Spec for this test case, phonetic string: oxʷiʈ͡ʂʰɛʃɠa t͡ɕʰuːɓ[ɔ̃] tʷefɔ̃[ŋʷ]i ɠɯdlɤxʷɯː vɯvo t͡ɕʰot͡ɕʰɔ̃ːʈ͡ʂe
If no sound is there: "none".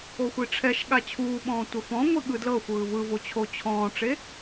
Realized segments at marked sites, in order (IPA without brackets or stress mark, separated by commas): ɔ̃ː, ŋʷ